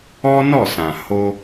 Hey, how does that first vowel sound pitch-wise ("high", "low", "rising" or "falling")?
high